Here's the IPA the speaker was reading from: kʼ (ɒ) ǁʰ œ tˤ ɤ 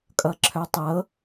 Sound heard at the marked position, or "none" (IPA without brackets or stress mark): ʌ